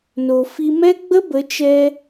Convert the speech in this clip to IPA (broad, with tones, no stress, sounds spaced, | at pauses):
n o˨ f i˧ m ɛ˦ ɡ͡b ə˦ b ə˨˦ t͡ʃ ɛ˧